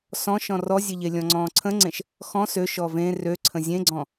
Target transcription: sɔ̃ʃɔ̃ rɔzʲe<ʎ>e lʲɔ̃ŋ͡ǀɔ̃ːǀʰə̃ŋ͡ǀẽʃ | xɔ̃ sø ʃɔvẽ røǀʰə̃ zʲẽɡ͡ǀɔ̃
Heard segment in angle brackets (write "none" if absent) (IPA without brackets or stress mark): ʎ